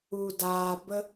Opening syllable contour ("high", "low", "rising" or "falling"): low